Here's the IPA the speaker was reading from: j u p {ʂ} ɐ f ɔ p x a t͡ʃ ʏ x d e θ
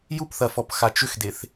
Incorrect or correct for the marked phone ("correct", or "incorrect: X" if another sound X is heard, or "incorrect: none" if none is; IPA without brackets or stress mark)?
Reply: incorrect: θ